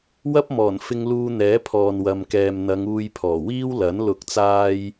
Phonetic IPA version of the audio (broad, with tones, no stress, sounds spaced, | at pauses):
w ɐ˥ p̚ m ɔː˨˩ n f ɪ˧ ŋ l uː˧ n̪ ɛː˨˥ pʰ ɔː˨ n w ɐ˨ m k ɛː˨ m n̪ ɐ˨˧ ŋ uː˧ j pʰ ɔː˨˩ w iː˥ w l ɐ˨˥ n l ʊ˨˥ k̚ t͡s aː˧ j